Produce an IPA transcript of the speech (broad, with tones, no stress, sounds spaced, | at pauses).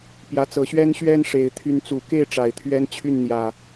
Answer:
p j ä˨˦ t͡s ɤ˨˦ ɕ ɥ ɛ˦ n ɕ ɥ ɛ˦ n ʂ e˨˦ ɪ̯ t̪ʰ y˦ n t͡s u˨˩ k e˥˨ ɪ̯ ʈ͡ʂ a˨˩ ɪ̯ t̪ʰ ɥ ɛ˦ n t͡ɕʰ y˥˨ n n̪ j ä˨˩